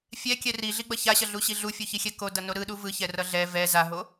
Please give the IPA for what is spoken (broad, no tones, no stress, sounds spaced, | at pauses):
fʲ ɛ kʲ ɛ r i ɮ i ɡ͡b ʌ ç a ɕ ʌ ɮ u ɕ i ɮ u fʲ u ç i xʲ ɛ k o d ʌ n o ɾ ɯ ɗ u v ɯ ç ɛ r ʌ ɮ ɛ v ɛ z a ɦ o